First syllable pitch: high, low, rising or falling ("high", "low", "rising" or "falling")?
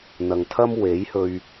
low